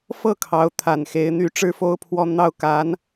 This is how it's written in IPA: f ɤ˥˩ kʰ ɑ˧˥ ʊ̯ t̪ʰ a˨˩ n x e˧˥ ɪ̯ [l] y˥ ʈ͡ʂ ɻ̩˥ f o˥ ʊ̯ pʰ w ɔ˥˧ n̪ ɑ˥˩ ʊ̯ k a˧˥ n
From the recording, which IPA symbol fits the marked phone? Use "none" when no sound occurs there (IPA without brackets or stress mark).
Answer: n̪